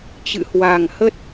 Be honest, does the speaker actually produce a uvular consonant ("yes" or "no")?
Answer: no